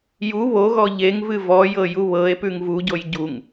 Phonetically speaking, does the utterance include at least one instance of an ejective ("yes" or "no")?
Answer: no